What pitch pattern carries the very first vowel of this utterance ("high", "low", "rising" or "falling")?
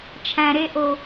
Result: low